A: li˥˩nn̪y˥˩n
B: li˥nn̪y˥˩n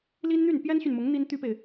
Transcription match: B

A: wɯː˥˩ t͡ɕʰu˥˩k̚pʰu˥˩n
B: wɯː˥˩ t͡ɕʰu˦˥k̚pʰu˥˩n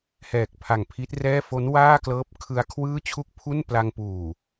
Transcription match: A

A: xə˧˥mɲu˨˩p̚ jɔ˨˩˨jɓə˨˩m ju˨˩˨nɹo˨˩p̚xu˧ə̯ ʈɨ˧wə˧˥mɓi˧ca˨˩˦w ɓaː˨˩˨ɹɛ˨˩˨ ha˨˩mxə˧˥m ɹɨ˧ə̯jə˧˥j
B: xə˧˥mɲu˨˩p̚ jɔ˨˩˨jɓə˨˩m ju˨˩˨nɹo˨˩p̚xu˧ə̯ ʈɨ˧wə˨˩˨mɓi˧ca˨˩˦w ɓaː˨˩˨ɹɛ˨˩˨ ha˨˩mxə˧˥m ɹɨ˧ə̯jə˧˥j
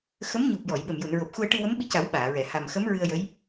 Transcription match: A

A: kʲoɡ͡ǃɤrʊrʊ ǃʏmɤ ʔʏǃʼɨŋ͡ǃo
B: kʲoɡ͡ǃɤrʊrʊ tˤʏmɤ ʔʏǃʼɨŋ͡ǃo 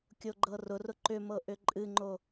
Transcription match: A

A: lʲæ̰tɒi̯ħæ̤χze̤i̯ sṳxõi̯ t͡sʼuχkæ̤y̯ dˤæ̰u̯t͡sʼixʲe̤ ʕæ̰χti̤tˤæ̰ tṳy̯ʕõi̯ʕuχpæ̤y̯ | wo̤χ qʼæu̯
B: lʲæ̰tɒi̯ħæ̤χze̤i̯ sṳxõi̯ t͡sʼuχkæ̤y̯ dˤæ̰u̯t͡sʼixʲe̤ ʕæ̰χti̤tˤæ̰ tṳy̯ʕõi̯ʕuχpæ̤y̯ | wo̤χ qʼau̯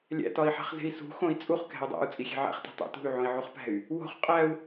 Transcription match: A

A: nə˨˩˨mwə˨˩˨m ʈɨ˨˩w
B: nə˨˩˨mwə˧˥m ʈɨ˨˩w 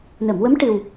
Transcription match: B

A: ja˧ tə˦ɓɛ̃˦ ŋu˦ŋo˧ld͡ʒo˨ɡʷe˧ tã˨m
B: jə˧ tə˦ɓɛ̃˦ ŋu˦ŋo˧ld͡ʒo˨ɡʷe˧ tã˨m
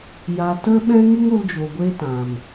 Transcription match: A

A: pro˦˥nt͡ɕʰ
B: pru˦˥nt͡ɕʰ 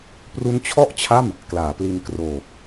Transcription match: B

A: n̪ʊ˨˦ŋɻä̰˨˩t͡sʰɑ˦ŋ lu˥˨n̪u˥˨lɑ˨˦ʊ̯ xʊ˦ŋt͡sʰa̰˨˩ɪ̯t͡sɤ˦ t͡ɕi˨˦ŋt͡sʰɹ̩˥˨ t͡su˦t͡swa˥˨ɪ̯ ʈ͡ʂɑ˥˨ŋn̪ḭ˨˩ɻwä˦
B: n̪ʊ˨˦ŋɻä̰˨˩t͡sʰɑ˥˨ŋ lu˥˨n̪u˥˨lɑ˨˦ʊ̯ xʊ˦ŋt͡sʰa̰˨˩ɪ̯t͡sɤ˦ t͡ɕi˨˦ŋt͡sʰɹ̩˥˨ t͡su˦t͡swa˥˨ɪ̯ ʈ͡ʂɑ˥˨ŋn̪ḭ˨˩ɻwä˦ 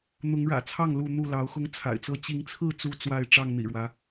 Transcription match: B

